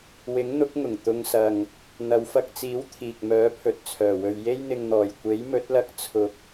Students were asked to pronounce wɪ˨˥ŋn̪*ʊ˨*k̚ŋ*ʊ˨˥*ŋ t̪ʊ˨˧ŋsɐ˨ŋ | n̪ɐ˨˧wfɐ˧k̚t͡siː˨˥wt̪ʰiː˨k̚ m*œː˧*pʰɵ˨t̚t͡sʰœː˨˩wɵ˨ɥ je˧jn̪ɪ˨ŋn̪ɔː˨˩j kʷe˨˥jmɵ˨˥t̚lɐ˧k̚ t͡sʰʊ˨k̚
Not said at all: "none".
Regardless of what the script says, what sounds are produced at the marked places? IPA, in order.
ʊ˨˥, ʊ˨˩, œː˨˥

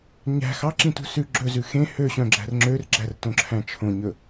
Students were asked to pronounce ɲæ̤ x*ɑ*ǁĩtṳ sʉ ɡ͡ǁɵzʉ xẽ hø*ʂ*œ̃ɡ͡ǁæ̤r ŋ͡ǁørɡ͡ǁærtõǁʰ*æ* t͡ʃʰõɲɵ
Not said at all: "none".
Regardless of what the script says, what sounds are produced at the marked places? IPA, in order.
ɑ, ɕ, æ̃

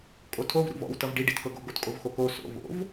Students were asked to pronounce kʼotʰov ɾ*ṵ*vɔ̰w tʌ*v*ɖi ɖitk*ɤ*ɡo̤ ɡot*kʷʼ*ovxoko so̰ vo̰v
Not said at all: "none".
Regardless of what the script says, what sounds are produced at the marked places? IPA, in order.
ṵ, v, ɤ, kʼ

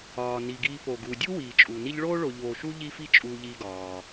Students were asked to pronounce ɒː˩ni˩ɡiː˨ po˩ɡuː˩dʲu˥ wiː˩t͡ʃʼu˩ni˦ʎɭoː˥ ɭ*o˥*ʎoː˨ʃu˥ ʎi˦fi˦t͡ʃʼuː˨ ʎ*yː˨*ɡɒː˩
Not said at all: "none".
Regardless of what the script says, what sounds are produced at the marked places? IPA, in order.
o˨, iː˨

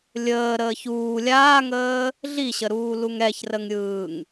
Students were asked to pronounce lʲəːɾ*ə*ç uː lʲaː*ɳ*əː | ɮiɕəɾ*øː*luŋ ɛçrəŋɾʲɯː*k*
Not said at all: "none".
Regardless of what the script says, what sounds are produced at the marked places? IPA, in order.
əː, ŋ, uː, ŋ

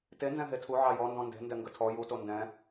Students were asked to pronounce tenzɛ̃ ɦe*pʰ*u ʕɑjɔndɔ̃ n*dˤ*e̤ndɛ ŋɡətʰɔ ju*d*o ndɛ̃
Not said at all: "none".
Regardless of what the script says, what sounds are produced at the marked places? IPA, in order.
tʰ, d, t

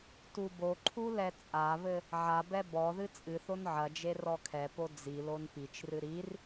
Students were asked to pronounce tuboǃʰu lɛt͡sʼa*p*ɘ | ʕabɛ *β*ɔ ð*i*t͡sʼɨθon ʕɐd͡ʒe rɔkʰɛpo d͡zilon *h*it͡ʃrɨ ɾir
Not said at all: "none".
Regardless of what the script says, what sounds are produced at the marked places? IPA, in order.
β, b, ɨ, p

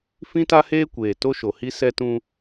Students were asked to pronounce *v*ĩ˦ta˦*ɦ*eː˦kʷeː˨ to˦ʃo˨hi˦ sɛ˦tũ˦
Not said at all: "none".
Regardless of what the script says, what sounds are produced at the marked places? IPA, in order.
f, h

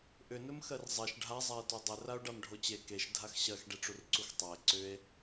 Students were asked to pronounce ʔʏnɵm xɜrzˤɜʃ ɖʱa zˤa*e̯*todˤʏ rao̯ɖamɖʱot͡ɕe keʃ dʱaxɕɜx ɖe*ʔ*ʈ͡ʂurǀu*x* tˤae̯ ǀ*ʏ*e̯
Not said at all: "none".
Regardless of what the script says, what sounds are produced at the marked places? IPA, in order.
e̯, none, x, ʏ

